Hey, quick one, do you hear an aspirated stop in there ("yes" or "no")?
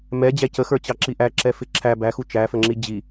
yes